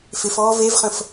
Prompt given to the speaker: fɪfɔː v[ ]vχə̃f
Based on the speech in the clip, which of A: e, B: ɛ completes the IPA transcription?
A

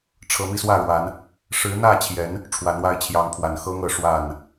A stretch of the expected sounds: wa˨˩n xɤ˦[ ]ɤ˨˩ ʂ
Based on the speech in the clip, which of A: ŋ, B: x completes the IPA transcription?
A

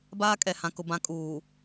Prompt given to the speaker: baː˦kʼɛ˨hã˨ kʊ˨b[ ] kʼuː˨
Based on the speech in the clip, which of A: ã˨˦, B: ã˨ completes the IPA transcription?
A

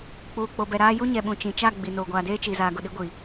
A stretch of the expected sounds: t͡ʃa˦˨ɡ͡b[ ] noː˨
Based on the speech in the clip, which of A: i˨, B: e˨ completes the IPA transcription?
A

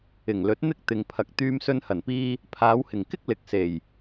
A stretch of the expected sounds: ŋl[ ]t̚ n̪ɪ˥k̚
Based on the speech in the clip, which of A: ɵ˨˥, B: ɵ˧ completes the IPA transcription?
A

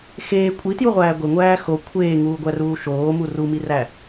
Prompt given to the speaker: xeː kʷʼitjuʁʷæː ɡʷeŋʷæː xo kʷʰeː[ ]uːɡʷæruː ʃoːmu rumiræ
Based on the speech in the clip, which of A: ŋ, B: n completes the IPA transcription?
A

